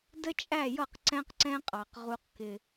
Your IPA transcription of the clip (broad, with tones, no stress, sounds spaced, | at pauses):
d ə˦ t͡ʃʼ æ˦˨ j ʌ˦˨ q ǀ ɛ̃˦ q ǀ ɛ̃˦ qʼ ɑ˨ q ʁ u˦ q k ɪ˦